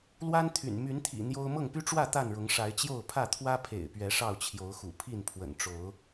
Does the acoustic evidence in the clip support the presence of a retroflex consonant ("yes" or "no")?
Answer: yes